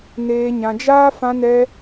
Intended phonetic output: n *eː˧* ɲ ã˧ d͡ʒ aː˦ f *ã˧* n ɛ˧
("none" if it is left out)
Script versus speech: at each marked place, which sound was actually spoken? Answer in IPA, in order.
eː˧, ã˧

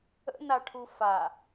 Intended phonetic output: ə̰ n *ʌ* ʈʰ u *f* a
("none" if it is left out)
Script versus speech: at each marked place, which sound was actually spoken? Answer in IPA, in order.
a, f

